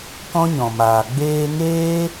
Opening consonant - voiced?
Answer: no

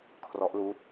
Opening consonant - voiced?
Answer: no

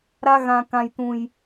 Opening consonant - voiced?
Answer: yes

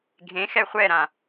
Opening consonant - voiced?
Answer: yes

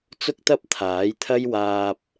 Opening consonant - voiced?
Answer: no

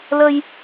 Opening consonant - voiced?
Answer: yes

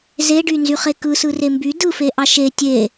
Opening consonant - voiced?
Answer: yes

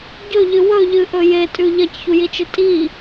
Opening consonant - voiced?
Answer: yes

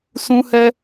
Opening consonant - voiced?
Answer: no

